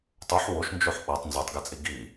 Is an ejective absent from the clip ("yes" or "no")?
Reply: no